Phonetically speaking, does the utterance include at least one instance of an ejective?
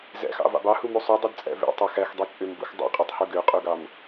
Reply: yes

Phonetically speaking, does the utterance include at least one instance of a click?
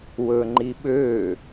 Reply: yes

